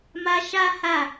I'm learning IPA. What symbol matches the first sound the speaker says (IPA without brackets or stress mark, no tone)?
m